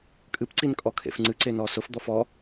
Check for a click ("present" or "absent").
present